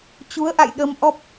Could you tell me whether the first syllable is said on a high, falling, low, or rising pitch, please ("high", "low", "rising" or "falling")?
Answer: rising